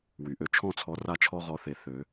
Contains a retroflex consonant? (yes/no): no